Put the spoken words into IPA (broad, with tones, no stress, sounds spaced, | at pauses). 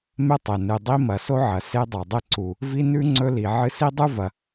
m e˥ tˤ e˩ n ɨ˩ dˤ i˥ m ɐ˩ s o˥ ʕ ɐ˩ s e˥ dˤ a˩ dˤ e˥ ǀ u˩ | v i˥ n ʉ˥ ŋ͡ǀ ɵ˥ l i˩ ʕ ɨ˥ s i˥ dˤ ʉ˥ v ɐ˩